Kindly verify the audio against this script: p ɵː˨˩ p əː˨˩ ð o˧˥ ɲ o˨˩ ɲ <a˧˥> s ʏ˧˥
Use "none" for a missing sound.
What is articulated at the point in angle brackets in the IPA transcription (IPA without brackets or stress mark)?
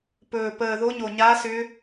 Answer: a˧˥